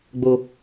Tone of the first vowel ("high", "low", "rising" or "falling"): low